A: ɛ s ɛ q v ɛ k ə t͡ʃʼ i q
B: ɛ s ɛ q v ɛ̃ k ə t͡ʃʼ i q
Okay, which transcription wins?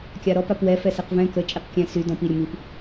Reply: B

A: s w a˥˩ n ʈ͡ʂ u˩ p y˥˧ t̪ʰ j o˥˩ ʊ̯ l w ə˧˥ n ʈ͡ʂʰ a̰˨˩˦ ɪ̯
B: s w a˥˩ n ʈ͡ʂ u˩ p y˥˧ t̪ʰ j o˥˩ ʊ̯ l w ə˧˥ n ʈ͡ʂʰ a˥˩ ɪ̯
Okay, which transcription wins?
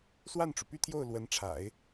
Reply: A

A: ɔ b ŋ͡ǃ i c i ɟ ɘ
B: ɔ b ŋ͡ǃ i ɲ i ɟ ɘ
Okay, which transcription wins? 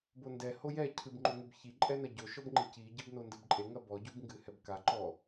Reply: A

